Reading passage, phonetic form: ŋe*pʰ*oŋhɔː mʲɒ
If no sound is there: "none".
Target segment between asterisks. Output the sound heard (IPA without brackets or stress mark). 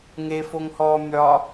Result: f